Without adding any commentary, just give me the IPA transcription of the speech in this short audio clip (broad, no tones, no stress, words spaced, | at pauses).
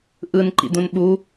ʔɯnǃḭd̪ũn ɓu